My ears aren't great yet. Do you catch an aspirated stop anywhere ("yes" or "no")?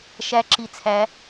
yes